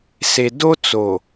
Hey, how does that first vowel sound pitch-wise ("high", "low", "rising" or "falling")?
low